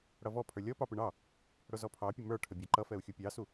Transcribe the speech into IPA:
ɽ ʌ v ɔ pʰ ə˞ lʲ ɔ p ɑ p ɪ ɳ ɑ | ɽ ʊ z ɔ pʰ ɑ pʲ ʊ m ə˞ ʈʰ ə bʲ ɑ ǃ ʌ f ɛ u̯ xʲ u pʲ ɑ s u

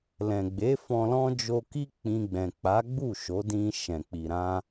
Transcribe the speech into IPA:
l ɛ̃˨ ɡ͡b e˨˦ f ɔ̃˧ l ɔ̃˦ d͡ʒ o˧ k i˦ k͡p ĩ˧ ɡ͡b ɛ̃˨ k͡p a˨˦ ɡ͡b u˦˨ ʃ o˨˦ d ĩ˧ ʃ ɛ̃˨ k͡p i˨ ɾ ã˧

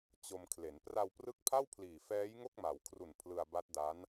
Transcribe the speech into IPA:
t͡ɕ o˧ m kʰ l e˩˦ n p r a˧ w p r ɯ˦˥ k̚ pʰ a˥˩ w pʰ l iː˨˩ f ɛː˦˥ j ŋ o˥˩ k̚ m a˩˦ w kʰ r u˨˩ n pʰ l ɯ˧ a̯ b a˦˥ t̚ d a˦˥ n

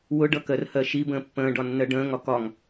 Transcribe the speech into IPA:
w ʊ ɖ ʌ k ɜ r h ɜ ʃ i b ə̃ː pː ə̃ː ɖ ɒ nː ɜ ɖ ə̃ː ŋ ɒ k ɒ ŋ

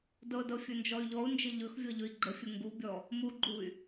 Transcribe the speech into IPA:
d ɤ d ɤ fʲ ɵ n d͡ʒ ɔ y̯ ʎ ɔ u̯ n d͡ʒ ə ʎ ɵ x vʲ ɤ ʎ ɵ i̯ ɡ͡ǃ ə fʲ ə ŋ ɡ u bʲ ɔ | m u ɡ͡ǃ u y̯

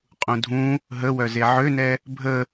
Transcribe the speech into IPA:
qʼ ũ dʱ ũ | ɦ ə w œ z e ʕ ø n ɛ | bʱ ə

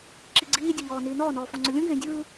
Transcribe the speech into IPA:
ǁ i ɡ͡ǀ iː dʲ e ʎ ɔː n iː n ɔː n ɔː f ɔ̃ ŋ͡ǀ ɵ lʲ ũ ɡ ẽː dʲ ɯ

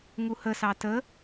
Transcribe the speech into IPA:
ŋ u h ə s ɑ t ə

